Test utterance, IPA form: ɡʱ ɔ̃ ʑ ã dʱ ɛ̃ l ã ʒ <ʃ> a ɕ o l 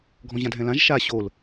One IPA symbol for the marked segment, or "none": ʃ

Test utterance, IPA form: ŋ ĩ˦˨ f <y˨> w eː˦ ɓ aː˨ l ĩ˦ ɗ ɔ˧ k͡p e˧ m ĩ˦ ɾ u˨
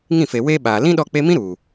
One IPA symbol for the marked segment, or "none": e˨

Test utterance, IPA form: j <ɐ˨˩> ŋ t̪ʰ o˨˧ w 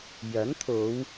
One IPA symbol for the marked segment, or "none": ɐ˨˥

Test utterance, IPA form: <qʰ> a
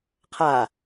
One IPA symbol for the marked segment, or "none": qʰ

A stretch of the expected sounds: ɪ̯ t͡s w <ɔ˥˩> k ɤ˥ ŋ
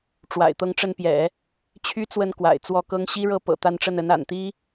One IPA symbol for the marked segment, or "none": ɔ˥˩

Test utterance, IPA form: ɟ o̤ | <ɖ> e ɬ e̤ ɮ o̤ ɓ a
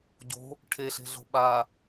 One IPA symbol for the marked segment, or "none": ʈʰ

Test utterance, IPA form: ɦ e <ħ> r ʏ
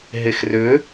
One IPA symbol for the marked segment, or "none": x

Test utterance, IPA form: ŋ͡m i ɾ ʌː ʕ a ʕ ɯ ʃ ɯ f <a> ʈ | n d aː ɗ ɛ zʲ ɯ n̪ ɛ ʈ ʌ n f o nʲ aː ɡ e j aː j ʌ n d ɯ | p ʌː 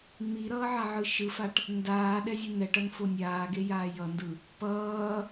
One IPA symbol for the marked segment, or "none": a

